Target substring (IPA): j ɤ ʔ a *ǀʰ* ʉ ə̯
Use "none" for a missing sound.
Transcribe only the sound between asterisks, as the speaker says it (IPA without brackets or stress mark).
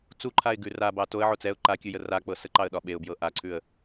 ǀʰ